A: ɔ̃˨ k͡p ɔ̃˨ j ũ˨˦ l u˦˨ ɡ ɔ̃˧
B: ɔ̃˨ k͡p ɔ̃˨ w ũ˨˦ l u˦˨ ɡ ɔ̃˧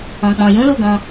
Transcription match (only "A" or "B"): A